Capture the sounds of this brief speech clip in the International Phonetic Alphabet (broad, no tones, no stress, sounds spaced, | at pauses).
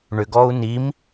ɳ ʏ ɡ ɔː u̯ n i m